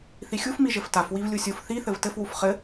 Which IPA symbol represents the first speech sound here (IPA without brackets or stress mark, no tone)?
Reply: θ